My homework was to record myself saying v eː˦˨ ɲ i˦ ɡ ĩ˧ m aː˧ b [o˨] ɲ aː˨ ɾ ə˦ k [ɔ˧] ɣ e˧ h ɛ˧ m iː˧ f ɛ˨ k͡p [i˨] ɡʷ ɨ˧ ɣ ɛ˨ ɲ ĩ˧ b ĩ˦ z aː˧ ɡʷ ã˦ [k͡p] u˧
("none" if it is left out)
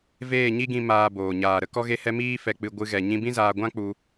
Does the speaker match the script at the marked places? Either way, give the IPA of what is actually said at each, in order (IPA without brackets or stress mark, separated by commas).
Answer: oː˨, ɔ˧, ɨ˨, k͡p